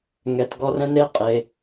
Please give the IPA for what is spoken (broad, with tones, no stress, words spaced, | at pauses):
ŋɛ˨tɡɔ˧rɛ̃˦ ne˦qʼe˨